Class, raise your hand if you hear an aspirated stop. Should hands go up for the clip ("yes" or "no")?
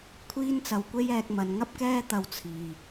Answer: yes